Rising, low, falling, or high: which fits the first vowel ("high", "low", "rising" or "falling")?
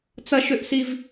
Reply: high